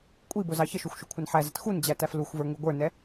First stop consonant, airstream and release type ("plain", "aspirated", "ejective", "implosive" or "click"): ejective